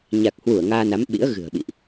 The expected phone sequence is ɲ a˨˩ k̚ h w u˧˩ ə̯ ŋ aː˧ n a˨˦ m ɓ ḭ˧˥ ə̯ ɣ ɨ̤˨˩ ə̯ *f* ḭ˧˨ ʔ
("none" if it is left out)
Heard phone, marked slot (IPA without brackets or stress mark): ɓ